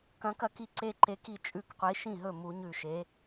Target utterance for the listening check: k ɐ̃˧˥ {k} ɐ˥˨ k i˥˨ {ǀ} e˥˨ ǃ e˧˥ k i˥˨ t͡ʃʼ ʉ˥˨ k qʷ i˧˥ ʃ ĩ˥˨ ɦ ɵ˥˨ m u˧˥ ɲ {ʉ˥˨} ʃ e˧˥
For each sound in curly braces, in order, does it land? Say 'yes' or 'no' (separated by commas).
yes, yes, yes